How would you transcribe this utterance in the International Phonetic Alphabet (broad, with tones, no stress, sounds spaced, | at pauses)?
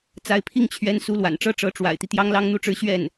t͡s a˧˥ ɪ̯ pʰ i˥˩ ŋ t͡ɕʰ ɥ ɛ˧˥ n s u˧˥ l w a̰˨˩ n ʈ͡ʂ ɤ˥ ʈ͡ʂ ɤ˧˥ ʈ͡ʂ w a̰˨˩ ɪ̯ t̪ i˦ t̪ j ɑ˥ ŋ l ɑ˥ ŋ n̪ u˥˧ ʈ͡ʂ ɻ̩˥˧ ɕ ɥ ɛ˥˩ n